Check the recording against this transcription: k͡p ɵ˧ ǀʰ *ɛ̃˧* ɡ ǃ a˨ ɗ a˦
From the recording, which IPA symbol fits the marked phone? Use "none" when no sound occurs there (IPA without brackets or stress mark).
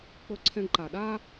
ɛ̃˧